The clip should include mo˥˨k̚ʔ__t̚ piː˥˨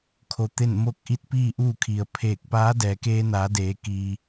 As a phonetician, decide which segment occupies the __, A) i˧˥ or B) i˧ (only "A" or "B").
A